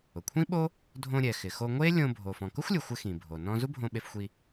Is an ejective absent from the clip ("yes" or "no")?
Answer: yes